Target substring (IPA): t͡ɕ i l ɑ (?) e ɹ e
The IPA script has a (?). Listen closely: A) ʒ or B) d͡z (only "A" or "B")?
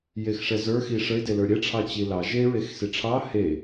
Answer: A